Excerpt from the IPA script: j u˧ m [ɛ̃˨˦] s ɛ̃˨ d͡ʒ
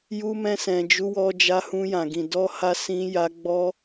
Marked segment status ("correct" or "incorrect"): incorrect